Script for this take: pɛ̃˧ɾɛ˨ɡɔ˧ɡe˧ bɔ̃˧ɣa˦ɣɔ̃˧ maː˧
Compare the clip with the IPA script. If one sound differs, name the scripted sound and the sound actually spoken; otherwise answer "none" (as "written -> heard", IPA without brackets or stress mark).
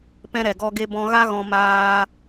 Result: none